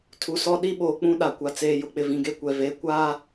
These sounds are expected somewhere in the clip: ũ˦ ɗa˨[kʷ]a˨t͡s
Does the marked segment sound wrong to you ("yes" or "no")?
no